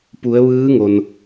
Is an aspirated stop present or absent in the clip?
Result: absent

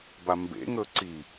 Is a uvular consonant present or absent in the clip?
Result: absent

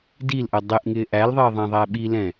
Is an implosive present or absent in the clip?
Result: present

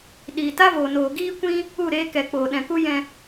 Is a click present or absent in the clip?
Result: absent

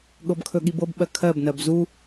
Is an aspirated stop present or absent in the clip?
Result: present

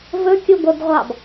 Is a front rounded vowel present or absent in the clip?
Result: present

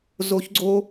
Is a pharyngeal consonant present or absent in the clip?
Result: absent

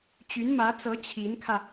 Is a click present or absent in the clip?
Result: absent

